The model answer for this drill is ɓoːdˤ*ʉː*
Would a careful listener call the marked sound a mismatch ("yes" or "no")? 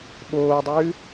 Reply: no